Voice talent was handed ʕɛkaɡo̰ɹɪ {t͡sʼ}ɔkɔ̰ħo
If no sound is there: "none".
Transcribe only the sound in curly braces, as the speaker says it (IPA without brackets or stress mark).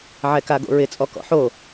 t͡sʼ